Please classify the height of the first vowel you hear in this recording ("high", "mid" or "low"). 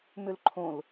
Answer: high